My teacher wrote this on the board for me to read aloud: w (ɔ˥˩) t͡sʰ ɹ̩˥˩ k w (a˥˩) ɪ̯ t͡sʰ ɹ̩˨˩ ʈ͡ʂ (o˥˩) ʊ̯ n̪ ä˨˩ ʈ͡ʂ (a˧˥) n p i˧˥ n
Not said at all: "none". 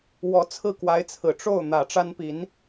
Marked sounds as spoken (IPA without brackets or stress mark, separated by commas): ɔ˧˥, a˧˥, o˥˩, a˥